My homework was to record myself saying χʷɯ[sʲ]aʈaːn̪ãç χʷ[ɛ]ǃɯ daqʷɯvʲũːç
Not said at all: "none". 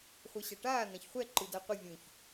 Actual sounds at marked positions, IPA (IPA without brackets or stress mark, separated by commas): ɕ, ɛ